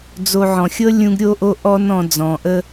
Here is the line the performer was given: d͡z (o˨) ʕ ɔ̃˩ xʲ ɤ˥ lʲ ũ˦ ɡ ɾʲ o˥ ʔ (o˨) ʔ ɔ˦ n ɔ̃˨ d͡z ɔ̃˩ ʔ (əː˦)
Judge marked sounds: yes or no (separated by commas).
yes, no, no